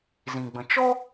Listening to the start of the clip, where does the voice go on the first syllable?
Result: low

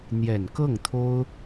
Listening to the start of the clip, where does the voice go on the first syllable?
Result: low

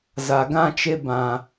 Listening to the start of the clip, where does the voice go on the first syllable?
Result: low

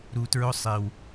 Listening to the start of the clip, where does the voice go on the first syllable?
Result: low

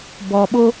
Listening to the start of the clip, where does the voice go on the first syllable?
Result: low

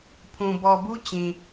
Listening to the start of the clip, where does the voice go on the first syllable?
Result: low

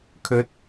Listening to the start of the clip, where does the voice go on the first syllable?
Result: rising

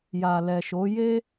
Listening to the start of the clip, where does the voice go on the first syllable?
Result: low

